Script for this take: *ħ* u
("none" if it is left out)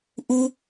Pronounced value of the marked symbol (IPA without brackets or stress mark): ʔ